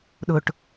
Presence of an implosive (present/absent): present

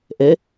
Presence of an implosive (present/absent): absent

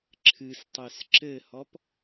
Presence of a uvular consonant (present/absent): absent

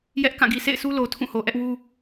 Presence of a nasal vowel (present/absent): present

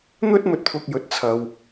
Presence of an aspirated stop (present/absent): present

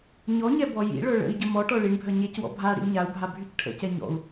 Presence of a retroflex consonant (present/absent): present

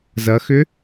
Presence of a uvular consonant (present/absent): absent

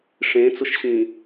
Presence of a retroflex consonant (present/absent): present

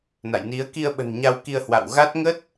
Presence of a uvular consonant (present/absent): absent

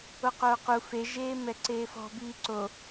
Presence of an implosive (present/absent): absent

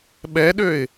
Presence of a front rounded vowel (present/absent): present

